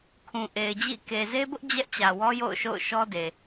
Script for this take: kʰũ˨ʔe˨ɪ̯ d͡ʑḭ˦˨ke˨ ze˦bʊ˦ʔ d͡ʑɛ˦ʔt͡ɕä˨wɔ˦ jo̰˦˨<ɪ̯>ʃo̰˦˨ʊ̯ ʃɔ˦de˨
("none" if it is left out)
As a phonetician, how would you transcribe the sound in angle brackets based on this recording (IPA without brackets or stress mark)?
ʊ̯